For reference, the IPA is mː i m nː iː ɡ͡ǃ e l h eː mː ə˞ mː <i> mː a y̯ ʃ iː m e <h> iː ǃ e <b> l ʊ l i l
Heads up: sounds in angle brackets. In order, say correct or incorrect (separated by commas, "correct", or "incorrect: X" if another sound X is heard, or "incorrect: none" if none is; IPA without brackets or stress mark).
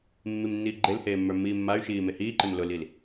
incorrect: iː, correct, incorrect: m